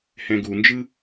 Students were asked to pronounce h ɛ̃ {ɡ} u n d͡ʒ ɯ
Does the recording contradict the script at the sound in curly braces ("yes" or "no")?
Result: no